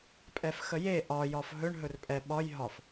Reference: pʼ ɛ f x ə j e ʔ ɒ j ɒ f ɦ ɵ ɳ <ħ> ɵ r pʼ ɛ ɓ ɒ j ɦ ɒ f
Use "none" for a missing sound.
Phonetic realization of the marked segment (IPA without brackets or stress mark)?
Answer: ɦ